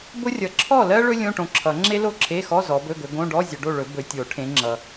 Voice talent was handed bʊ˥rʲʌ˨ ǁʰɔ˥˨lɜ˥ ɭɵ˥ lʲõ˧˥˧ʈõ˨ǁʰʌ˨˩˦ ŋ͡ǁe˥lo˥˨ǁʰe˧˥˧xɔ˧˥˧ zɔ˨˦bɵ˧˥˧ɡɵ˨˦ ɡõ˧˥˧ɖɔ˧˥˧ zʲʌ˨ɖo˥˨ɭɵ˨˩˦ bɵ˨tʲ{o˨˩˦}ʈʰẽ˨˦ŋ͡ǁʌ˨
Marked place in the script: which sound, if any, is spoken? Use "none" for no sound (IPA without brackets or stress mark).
o˨˩˦